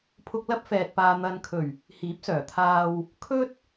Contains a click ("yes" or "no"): no